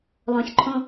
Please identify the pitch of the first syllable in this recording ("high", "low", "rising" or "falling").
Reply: low